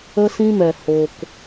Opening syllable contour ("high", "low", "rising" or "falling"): high